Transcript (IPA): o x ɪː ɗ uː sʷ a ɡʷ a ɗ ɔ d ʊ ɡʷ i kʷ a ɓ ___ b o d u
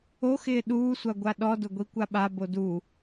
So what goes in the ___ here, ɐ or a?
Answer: a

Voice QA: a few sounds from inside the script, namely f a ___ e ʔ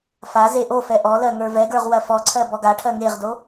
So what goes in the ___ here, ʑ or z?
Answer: z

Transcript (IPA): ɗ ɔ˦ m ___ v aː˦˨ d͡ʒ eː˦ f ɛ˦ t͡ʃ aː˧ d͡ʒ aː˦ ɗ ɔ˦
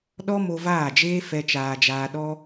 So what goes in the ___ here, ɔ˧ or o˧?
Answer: o˧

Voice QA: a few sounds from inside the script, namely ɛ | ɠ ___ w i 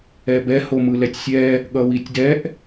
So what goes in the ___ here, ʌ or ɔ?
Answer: ʌ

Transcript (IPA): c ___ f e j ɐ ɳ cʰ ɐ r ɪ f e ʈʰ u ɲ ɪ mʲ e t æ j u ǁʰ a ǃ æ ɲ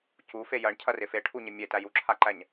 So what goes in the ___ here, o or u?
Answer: u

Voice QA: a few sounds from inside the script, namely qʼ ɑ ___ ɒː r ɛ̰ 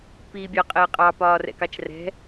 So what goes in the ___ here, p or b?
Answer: p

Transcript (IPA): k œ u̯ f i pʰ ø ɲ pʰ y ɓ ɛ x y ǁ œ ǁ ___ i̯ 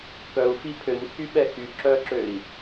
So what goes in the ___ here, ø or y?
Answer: ø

